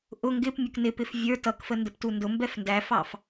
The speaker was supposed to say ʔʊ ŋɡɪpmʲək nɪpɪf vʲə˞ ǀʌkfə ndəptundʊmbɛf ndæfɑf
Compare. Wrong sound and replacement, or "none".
ǀ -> t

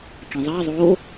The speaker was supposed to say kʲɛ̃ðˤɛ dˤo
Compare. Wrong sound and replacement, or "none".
dˤ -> ðˤ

